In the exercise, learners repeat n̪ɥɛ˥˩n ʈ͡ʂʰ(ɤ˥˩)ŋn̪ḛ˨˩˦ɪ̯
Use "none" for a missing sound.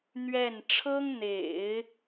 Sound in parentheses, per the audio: ɤ˥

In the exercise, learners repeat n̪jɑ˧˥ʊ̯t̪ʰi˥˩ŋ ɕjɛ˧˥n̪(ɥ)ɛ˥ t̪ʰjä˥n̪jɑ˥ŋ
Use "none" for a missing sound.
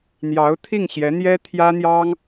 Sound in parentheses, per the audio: j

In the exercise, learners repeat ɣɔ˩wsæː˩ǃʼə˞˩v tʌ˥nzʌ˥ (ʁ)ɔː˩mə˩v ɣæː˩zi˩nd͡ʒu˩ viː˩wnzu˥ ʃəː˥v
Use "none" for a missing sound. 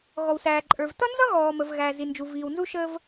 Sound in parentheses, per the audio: ɣ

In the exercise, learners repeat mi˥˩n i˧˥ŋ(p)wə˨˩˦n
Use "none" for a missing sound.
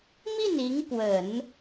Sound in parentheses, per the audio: p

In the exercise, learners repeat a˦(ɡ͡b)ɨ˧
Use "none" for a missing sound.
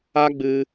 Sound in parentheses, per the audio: ɡ͡b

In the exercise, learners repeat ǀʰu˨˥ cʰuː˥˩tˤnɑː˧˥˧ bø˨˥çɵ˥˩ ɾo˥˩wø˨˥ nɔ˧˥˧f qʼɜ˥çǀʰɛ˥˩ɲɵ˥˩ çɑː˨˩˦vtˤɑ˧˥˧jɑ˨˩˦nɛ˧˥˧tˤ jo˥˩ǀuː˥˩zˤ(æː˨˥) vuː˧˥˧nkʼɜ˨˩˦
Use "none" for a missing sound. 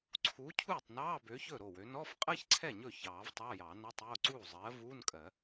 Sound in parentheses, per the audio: ɜː˨˥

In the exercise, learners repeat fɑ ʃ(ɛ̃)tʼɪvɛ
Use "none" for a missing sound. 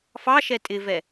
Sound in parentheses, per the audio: ɛ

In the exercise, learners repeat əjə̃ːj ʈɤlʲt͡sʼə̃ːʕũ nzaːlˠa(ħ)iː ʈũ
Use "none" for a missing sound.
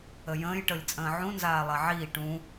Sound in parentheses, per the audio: ʕ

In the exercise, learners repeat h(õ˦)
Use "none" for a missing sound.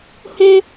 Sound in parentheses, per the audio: õ˦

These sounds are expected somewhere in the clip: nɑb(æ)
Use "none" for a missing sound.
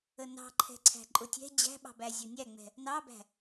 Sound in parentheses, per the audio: æ̤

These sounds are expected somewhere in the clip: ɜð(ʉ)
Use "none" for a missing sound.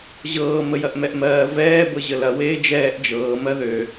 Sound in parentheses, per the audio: ø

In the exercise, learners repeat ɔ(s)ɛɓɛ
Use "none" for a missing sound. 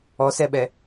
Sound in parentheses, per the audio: s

